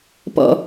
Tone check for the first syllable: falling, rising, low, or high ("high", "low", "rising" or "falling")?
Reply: falling